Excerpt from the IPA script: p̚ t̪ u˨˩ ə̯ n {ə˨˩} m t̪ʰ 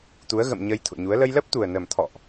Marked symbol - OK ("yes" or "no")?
yes